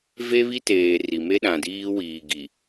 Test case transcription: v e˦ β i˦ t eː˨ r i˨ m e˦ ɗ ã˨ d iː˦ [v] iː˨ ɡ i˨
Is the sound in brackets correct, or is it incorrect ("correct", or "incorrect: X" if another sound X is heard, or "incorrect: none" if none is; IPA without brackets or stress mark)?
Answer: incorrect: w